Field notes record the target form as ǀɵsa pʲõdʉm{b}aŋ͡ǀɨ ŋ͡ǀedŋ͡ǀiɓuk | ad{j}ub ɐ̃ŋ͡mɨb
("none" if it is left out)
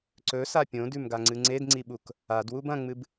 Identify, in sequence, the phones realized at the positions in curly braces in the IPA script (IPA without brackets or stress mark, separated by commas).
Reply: ɡ, w